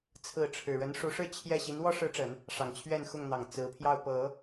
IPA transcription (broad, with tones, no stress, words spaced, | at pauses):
t͡sʰɹ̩˥˩ ʈ͡ʂʰɻ̩˨˩ ɻə˧˥nʂu˧˥ʂɻ̩˥˧ t͡ɕʰjɛ˥˩ ɕi˧˥nwɔ˥ʂɻ̩˧˥ʈ͡ʂə˨˩˦n | ʂɑ˨˩ŋt͡ɕʰɥɛ˥˧nxʊ˥˩ŋn̪ɑ˨˩ŋ t͡sɹ̩˧˥pʰjɑ˥˩ʊ̯ pɤ˨˩˦